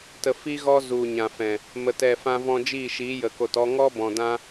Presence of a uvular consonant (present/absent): absent